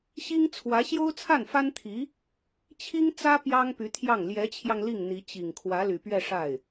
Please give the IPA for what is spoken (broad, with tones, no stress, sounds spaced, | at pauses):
ɕ i˥ ŋ t͡sʰ w ä˧˥ ɕ j o˥ ʊ̯ t͡sʰ a˥˩ n f a˥ n t̪ʰ i˧˥ | t͡ɕʰ i˥ ŋ t͡s ä˥ p j ɑ˥ ŋ p y˧˥ t̪ʰ j ɑ˥˩ ŋ l j ɛ˧˥ t͡ɕʰ j ɑ˧ ŋ l i˥˩ ŋ n̪ i˧˥ t͡ɕ i˨˩ ŋ kʰ w ä˧˥ l y˨˩ p ɥ ɛ˥˧ ʂ a˥˩ ɪ̯